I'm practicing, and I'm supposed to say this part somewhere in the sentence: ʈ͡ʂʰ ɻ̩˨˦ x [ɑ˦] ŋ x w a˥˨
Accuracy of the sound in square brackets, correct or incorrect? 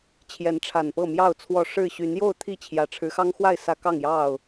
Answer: correct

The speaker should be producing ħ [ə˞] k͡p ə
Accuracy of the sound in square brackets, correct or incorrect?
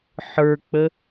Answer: correct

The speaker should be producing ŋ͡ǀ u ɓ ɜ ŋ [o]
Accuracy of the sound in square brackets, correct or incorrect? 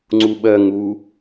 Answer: incorrect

